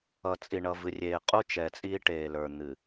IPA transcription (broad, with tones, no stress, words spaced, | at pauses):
ʌ˨ t͡sʼi˨ɳʌ˨vɨ˨ rʲeː˨ qʼu˦ t͡ʃɛ˨t͡sʼiː˦ ʈeː˨lə˞˨ n̪ɨ˨